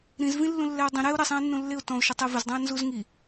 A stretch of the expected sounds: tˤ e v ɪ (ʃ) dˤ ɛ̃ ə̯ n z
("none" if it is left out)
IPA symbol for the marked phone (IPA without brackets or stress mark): z